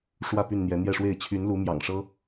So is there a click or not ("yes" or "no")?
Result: no